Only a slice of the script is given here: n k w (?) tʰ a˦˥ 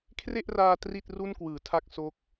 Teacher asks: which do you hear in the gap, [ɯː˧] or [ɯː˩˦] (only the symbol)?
ɯː˩˦